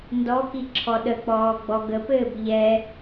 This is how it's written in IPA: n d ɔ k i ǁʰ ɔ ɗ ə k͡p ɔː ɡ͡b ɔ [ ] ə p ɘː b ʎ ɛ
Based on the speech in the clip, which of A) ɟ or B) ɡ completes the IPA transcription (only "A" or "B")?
B